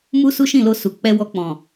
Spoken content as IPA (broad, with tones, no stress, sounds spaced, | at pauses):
m u˦ s u˦ ʃ ĩ˦˨ l o˧ s u˨ k͡p ɛ˧ w ɔ˧ k͡p ɔ̃˨